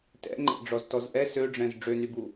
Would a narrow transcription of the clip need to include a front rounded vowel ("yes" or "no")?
yes